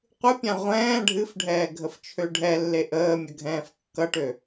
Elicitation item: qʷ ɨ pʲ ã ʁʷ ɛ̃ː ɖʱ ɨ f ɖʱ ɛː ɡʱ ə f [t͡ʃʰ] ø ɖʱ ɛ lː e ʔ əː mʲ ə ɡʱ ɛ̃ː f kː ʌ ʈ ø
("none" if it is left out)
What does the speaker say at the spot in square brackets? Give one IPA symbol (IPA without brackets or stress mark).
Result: t͡ʃʰ